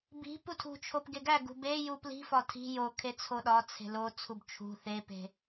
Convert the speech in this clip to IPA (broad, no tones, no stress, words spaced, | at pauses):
bi̤ putʰṳt͡ʃʰop ɡeɡæɡṳ beju pli̤fɒ tʰi̤ jo kʰet͡sʰoɗɒt͡sʰe̤ lot͡sʰub t͡ʃʰṳ θepe̤